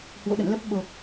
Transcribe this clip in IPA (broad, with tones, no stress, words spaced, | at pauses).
hwo̰˧˨ɗə̰˧˨nlə˦˥p̚ ɓo˨˩k̚